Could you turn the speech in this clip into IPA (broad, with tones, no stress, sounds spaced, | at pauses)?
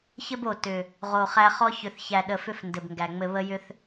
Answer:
ç ɘ˦ b o˨˩ t ʏ˨˩ | ʁ o˨˩ χ æ˦ χ ɔ˦ ç ʏ˨˩ θ ç æ˨˩ ɗ ə˨˩ f ʏ˦ f n d ɘ˨˩ b ŋ ɡ æ˨˩ ŋ͡m ɘ˦ β ə˦ j ʏ˦ θ